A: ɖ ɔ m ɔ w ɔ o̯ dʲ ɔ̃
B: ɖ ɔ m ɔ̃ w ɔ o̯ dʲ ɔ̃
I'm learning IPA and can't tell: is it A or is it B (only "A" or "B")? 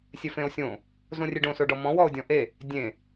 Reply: B